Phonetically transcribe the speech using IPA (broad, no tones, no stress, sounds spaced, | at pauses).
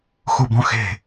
x u b ɔ̃ x e̤